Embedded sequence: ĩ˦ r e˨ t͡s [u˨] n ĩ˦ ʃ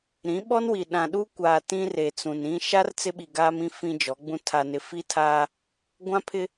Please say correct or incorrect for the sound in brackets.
incorrect